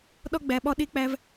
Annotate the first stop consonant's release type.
implosive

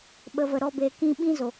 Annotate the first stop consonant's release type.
implosive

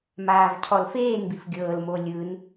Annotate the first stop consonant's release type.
aspirated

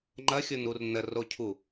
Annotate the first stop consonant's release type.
click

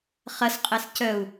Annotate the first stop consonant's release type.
ejective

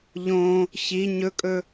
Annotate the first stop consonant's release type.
ejective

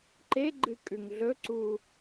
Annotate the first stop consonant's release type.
click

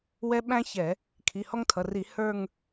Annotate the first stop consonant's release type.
implosive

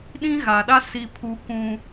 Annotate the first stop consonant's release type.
implosive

